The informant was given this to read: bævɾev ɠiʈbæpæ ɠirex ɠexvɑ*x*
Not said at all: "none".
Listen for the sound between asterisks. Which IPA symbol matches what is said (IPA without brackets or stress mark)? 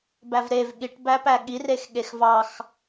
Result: x